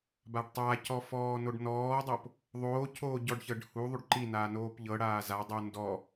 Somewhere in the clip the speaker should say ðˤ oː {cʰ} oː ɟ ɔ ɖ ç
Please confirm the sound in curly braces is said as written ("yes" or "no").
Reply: yes